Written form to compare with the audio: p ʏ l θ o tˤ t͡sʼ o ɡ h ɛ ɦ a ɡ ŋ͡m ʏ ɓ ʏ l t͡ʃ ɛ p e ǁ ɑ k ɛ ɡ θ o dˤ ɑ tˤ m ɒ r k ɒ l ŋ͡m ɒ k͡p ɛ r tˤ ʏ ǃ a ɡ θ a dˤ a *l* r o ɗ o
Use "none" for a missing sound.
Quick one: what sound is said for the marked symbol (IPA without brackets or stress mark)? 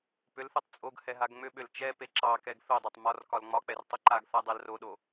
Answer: l